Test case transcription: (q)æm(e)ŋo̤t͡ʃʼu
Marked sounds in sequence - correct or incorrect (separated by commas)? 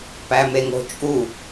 incorrect, correct